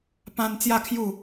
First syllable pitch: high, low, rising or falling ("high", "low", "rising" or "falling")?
high